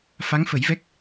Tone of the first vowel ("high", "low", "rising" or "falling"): rising